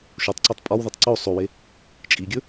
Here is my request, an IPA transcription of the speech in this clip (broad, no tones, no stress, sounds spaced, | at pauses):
ʃ o tˤ ǀ o tˤ pʼ ɒ w ð e tˤ ǀ o sˤ o w e | t͡ʃʼ i ɡʲ ɵ